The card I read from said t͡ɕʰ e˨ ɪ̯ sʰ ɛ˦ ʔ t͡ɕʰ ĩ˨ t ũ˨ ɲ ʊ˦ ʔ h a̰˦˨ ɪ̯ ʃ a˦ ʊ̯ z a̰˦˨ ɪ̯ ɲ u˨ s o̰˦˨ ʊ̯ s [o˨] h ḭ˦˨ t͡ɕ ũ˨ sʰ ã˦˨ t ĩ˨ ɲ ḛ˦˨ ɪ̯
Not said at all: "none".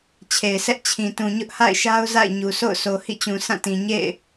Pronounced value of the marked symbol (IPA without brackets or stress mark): o˨